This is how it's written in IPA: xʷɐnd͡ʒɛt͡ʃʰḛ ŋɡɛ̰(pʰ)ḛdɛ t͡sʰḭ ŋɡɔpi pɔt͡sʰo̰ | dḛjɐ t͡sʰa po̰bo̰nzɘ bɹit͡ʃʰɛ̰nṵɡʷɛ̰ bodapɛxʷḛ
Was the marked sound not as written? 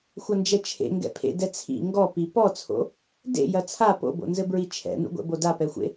no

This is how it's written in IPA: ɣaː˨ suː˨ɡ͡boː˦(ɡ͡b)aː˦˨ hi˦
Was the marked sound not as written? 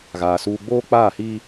yes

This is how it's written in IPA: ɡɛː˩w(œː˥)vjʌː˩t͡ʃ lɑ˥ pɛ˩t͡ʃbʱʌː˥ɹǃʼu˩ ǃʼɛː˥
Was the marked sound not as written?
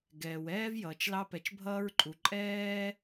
yes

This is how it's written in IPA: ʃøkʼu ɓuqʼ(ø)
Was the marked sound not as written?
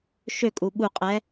yes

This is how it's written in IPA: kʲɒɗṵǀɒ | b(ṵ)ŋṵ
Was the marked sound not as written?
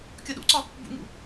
no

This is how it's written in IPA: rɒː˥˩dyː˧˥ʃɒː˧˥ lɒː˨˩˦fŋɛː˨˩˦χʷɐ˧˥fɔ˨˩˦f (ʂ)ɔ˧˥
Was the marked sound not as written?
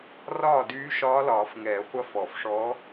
no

